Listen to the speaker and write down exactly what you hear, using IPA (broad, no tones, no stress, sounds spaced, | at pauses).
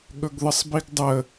ɠ ɵ ɡ ð ə sˤ b i ɡ dˤ ə